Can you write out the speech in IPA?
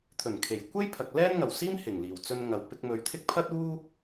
t̪ʰɵ˨˩nkʰe˨˩j kʷe˥jpʰɐ˨k̚ lɛː˥nŋɐ˨˩wsiː˥m hɪ˨˩ŋliː˨˩wt͡sɵ˧nŋɐ˨w pɪ˧k̚mɵ˨˧ɥt̪ʰɪ˥k̚ pʰɐ˥t̚ uː˥

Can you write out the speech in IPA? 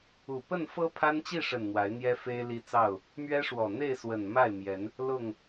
u˨˩pə˥˨n fɤ˦pʰa˦nt͡ɕi˥˨ʂə˨˩n n̪wa˨˦ɪ̯n̪jɛ˦ fe˦ɪ̯li˦t͡sɑ˥˨ʊ̯ | mɥɛ˦ʂwɔ˨˩ n̪e˥˨ɪ̯swə˨˩n ma˥˨ɪ̯mjɛ˨˦n | lʊ˥˨ŋ

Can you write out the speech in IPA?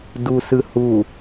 dusɯ hu

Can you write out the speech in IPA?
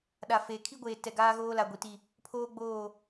ɗa˨feː˨ kʰi˦ɡʷeː˨ tɛ˨ɡaː˦ɣoː˦ la˨ɡʷi˨ti˦˨ | pʰoː˦ɡ͡boː˦˨

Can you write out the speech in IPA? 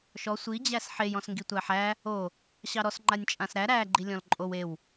ʃɔ sʷi d͡ʑæsħej ɔ̃sŋɡitʷæħæ | o | ɕɑɾɔs ŋ͡ǃanʲt͡ʃʼãsɾæ ɾæ ɡ͡ǃilʲɔ̃lǃʼow ew

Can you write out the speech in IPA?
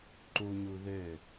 ǃuɲu ðø

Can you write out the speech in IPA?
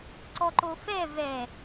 ǀɔǃofɛ vɛ

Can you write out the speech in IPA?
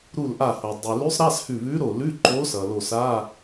ɾu˧˩lʔa˧˩ho˩ dˤʉ˩lʉ˧˥sˤ ɾa˧˥˧shʉ˧˩βʉ˧˥ɾo˧˩ lʉ˧˥˧ǃo˧˥ sʌ˩lo˧˩sa˧˥˧

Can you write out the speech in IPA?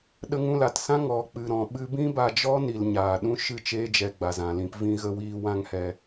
ɗə˧ŋũ˧la˨tsã˦ ŋɔ˨ k͡pɨ˨ɾɔ̃˨ɓɨ˧bĩ˦ ba˧d͡ʒɔ˦ni˨l ɲaː˨ɗũ˦ ʃɨ˦˨t͡ʃeː˧d͡ʒɛ˨ ɡ͡ba˨zã˨lĩ˧p vĩ˦ɣə˦ wiː˧wã˦ŋhɛ˧

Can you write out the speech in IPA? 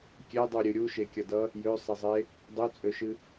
kʲɛdˤuɾʲɨ ɾʲuʃekʲʌdʌ | jøsˤɛzˤe | dˤøt͡sʼøʃɨ

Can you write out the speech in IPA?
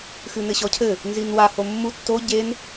xɨnɘɕɔcʰɘ | nzinwa homːu tːo ɟen

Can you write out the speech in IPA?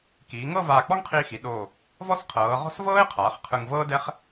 kiː˩˧ŋɤ˥˧vaː˧˩ k͡pɔ˥ŋqʰiː˧xi˩˧ɗoː˧˩ | vɔ˥sqʰɤː˩˧ʁɔ̤˥s vɤː˥ɪ̯qʰaː˩˧χ qʰɯ˧ŋvɤː˥dɛ˥χ

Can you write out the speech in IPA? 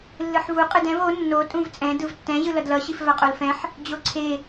lːɯħvu qʼɯdɛ̃v o nːo tʼũvt͡sʼɛ̃ dɯvtːɛ̃ ʑɯlʌdlʌ ɕifvaqʼolfɛ̃ħ | d͡ʑoǀʰe

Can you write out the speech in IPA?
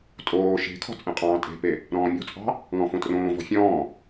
tʼoː ʃe̤kʰɔ̤ t͡sʼẽqʼɑ̃ːtʼe̤pe | ɾɔ̃ːmʲɔ̤t͡sʼɑ̤ | ŋɔ̃fõtrõːvɔ̤ fʲɔ̃ː

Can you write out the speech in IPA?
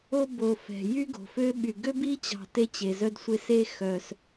o˦bo˨ fɛ̤˩ jy˦ ɡo̤˩fø˦ɓy˨ ɡø˥bi˥t͡ɕɑ̤˨ te˦t͡ɕe˩zœ˦dsʷe˦ se˦xœ˩s

